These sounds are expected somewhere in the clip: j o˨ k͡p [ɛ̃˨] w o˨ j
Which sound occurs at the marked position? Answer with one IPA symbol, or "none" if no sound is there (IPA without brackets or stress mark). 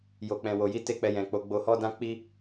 ɛ̃˨